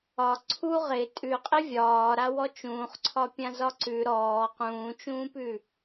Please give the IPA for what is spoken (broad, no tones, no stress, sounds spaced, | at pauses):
ɒ ǀʰ u ʁ ɪ tʼ ʉ qʼ ɪ vʲ ɒː ɾ a w ɔ t͡ʃ ũː χ ǀʰ ɒ pʲ ã z ɒ ǀ ʉ ɾ ɔː q ũː t͡ʃ ũː p ʉ